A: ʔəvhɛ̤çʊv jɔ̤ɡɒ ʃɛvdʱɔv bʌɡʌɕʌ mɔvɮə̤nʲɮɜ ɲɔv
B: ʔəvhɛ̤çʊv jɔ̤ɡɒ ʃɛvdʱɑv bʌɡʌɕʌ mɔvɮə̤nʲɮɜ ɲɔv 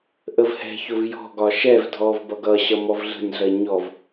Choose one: A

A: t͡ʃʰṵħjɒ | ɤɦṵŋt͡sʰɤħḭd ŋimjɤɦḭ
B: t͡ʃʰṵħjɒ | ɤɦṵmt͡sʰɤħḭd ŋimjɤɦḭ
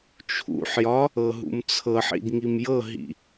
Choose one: B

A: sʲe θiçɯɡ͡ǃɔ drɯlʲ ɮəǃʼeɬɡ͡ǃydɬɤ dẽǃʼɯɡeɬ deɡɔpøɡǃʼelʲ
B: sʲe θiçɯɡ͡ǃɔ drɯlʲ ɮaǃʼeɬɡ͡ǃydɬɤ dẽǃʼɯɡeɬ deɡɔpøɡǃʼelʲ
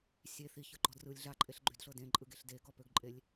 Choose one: B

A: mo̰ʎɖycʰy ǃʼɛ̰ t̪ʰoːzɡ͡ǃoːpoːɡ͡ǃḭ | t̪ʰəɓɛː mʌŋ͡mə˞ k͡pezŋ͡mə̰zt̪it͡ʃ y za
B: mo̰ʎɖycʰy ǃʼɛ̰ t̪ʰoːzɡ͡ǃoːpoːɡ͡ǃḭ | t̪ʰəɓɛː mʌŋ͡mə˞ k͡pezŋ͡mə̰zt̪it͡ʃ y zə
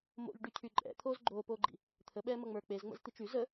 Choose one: B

